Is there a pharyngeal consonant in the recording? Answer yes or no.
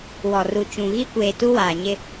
no